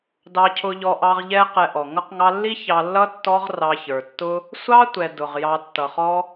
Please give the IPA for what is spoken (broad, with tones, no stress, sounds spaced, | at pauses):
d ɑ˧ cʰ ʊ˧ ʎ ɔ˧ ʔ ɑ˧ ʁ ʎ ɛ˧ q ɛ˧ ʔ ɔ˨ ŋ ʌ˦ q ŋ ɑ˦ lː i˦ ç ɑ˧ lː ʌ˦ tː ɔ˦ ʁ r ɑ˧ ç ə˞˨ tː ʊ˦ | sʷ ɑ˦ tʷ ɛ˨ d ʊ˨ ʁ j ɑ˧ tː ʌ˨ χ ɔ˦